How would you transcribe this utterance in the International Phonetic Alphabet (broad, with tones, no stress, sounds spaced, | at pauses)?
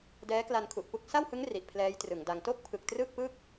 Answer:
d ɛː˦˥ k l a˧ n kʰ u˨˩ ʔ p u˥˩ k̚ s a˥˩ w h ɯ˦˥ ŋ r i˨˩ ʔ pʰ l ɛː˦˥ j t r ɯ˩˦ ŋ d a˧ ŋ t o˥˩ k̚ pʰ ɯ˨˩ k̚ t r ɯ˥˩ k̚ p ɯ˥˩ k̚